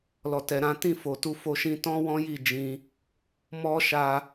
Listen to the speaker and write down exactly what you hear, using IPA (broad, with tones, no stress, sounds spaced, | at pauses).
l ɔ˨ t ɛ˨ ɾ ã˨˦ t ĩ˦˨ f o˨ t u˧ f o˧ ʃ ĩ˧ t ɔ̃˦ w ɔ̃˦ j i˦˨ d͡ʒ ĩ˧ | m ɔ˦ ʃ a˧